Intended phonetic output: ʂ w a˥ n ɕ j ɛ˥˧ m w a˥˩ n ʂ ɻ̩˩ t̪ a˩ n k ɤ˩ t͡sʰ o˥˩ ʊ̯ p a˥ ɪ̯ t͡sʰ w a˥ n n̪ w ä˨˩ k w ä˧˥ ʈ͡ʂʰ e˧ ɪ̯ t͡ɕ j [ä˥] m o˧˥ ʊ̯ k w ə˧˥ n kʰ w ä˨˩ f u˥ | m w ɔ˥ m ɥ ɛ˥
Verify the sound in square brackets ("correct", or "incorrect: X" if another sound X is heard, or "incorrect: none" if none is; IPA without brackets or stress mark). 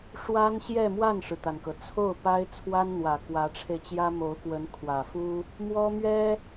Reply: correct